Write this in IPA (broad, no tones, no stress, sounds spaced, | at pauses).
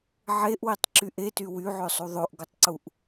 ʕ e ʔ w i tˤ ǁ y ʔ e t y w y ʕ ø sˤ u ðˤ o ʔ ɡ o tˤ ǀ u ʔ